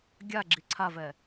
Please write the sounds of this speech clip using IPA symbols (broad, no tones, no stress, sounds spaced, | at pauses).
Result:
ɡʲ a ɡ͡ǁ i ǀʰ a v ɛ